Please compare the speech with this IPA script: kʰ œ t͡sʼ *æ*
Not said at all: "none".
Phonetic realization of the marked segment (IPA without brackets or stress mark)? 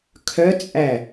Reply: æ